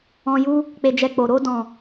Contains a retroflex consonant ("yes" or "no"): no